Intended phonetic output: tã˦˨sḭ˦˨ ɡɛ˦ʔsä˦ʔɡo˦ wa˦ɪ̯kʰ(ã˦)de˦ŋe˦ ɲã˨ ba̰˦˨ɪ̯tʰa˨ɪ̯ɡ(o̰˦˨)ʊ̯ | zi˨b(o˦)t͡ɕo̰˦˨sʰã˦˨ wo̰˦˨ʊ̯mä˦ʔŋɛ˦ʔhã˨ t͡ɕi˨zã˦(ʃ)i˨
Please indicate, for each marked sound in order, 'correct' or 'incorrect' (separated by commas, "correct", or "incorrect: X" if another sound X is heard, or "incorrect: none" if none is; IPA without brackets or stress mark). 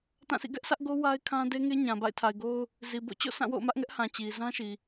correct, incorrect: o˦, incorrect: o̰˦˨, correct